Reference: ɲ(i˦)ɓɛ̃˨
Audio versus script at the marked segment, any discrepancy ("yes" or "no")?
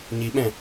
yes